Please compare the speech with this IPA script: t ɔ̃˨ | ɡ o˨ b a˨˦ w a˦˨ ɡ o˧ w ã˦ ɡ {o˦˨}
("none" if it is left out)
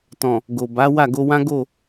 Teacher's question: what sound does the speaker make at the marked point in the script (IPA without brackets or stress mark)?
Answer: o˦˨